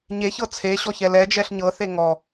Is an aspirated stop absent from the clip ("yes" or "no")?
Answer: no